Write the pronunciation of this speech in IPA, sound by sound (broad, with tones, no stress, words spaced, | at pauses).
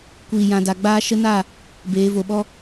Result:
kʷiː˨ jã˨da˨ɡ͡baː˧ ʃə˧na˦˨ | beː˨˦vo˧ɓɔ˦